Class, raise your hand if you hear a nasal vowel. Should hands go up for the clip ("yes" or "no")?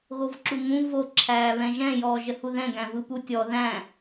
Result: yes